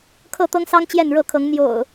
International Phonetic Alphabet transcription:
kʰɤ˥˨t̪ɤ˦ŋsɑ˦ŋ t͡ɕjɛ˥˨nɻɤ˥˨kʰɤ˨˦ŋ n̪jo̰˨˩ʊ̯

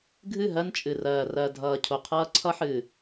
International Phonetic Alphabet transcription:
ɡʱɨ˦˨ɦɜ˦nt͡ʃʼɨ˨rɜː˨ rɜ˨ dʱʌː˨ cʰo˨qʰʌː˦ ǀʰʌ˦ħɨː˨

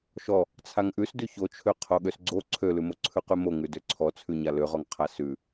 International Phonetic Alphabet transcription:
ʃɔ | t͡sʰaŋʔʉs dʉçot͡ʃʰø qʰoɠøsɡ͡ǀo ǀʰølʉmo ǀʰʉqʉmo ŋʉdøǀʰɔt͡sʰʉ ɲaløʁɔŋ qʰasʉ

